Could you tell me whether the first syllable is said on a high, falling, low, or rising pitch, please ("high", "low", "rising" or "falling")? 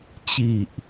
low